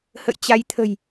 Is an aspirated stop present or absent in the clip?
present